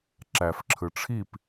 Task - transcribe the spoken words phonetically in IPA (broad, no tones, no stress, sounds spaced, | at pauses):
ǁ æ f ǁʰ ɯ ʈ͡ʂʰ i p